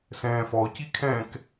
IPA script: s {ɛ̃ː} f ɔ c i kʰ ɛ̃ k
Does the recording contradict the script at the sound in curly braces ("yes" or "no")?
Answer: no